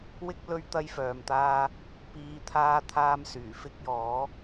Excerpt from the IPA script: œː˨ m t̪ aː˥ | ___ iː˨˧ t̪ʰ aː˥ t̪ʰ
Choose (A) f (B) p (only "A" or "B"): B